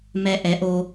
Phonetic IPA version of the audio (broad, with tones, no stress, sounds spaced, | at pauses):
m ɛ˧ ʔ ɛ˨˦ ʔ o˧